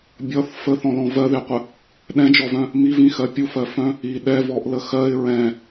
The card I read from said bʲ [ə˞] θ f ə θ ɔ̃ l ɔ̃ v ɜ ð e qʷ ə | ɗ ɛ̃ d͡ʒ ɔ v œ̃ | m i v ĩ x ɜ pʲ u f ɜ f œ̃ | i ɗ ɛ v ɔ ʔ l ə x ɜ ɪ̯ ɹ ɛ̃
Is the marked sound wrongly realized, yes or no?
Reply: yes